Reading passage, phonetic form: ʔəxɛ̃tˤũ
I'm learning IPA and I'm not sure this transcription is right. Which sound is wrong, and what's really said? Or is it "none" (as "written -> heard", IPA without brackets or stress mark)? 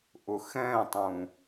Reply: ə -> ʊ